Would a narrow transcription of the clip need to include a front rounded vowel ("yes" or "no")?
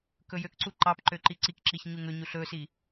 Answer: yes